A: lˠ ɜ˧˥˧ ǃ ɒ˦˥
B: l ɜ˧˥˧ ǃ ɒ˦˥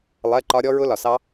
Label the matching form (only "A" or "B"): A